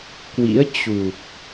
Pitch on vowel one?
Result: rising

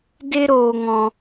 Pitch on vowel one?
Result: high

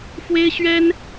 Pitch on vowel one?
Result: high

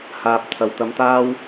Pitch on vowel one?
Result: low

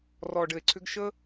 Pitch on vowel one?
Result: low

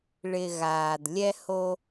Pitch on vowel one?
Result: low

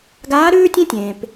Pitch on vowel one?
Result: rising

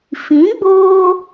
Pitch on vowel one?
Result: rising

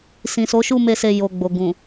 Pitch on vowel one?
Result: low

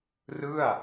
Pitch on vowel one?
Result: falling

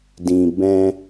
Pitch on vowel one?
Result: low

